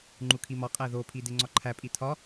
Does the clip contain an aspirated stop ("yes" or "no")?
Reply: yes